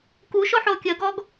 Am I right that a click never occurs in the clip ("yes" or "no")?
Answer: yes